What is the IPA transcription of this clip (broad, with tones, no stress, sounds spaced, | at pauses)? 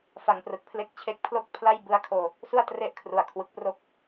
f a˨˩ ŋ p r ɯ˨˩ k̚ pʰ l e˥˩ k̚ t͡ɕʰ e˥˩ k̚ pʰ l o˥˩ k̚ pʰ l a˥˩ j b ɯ˦˥ a̯ kʰ oː˧ | s u˥˩ a̯ t r e˦˥ ʔ kʰ r u˩˦ a̯ kʰ w ɯ˨˩ k̚ p r o˥˩ k̚